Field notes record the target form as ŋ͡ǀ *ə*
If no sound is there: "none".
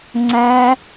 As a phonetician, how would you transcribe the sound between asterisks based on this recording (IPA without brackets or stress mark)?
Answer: æ